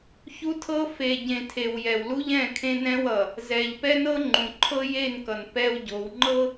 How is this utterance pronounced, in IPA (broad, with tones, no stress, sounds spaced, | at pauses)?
ç u˦ tʰ ɤ˦ f e˨ ɟ ẽ˨ tʰ e˨ w j ɛ˨ w l u˦ ʎ ɛ̃˦˨ kʰ ẽ˦ n ɛ̃˦ w ʌ˨ | z ɛ˨ ʎ p ɛ˦ n ɤ˦ ŋ͡ǃ ũ˨ ǃʰ ɤ˦ j e˦˨ n k ʌ˨ n p ɛ˦ w ɟ o˨˦ w ŋ͡ǃ ɤ˦